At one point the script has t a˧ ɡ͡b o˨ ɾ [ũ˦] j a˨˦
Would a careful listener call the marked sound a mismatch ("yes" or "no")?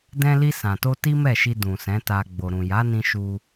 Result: yes